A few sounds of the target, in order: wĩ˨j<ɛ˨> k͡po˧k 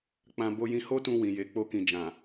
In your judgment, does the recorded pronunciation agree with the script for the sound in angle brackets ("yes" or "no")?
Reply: no